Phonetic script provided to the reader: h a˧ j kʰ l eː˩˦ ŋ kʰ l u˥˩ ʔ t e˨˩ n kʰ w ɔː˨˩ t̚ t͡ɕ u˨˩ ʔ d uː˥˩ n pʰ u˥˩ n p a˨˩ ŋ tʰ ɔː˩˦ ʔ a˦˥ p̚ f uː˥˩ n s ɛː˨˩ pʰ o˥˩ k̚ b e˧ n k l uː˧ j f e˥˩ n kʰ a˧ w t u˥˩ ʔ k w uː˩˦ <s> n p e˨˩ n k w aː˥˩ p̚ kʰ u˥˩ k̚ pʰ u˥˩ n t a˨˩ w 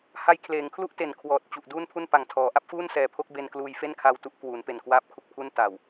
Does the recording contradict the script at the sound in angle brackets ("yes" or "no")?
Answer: yes